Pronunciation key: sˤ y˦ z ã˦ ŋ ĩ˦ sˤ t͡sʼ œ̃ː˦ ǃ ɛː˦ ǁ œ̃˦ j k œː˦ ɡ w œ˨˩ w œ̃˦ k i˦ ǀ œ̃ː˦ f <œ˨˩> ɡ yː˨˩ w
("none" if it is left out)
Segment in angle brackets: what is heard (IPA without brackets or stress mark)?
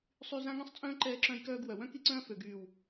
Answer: ø˨˩